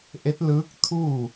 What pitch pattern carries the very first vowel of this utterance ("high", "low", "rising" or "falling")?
rising